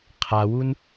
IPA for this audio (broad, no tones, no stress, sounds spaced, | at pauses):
qʰ a w u n